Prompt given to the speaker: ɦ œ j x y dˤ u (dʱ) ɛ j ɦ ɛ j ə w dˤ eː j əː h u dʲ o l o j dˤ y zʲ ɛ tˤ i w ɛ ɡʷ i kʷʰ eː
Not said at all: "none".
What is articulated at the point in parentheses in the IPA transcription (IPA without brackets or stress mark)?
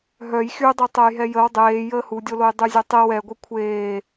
tˤ